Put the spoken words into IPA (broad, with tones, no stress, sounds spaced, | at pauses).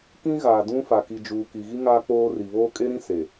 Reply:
k ĩ˦ ɣ aː˨ d ũ˦ f a˨ k i˨ d͡ʒ uː˨ k i˨ ɣ i˦ ŋ aː˦ k͡p oː˦ r i˨ β oː˦ kʼ e˦ ɾ ĩ˦ s e˨